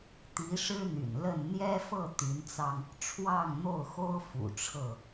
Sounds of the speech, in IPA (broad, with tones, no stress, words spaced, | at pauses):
t̪i˨˦ʂɻ̩˦ n̪y̰˨˩nlə˥˨n n̪jɛ˦fɤ˥˨ t̪y˨˦nt͡sɑ˧ŋ | ʈ͡ʂʰwɑ˥˨ŋn̪o˥˨ʊ̯xo˦ʊ̯ fṵ˨˩ʈ͡ʂʰɤ˥˨